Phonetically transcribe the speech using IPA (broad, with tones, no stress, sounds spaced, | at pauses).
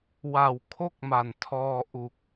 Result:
w a˨˩ w kʰ o˥˩ k̚ m a˨˩ n tʰ ɔː˧ ʔ u˨˩ k̚